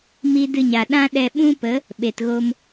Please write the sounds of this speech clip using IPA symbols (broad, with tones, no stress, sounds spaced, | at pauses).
m i˦ d ɨ˧ ɲ a˨ ɗ ã˦ ɗ ɛ˧ ɓ ũ˦ p ə˨˦ | ɓ e˨ t ɣ o˧ m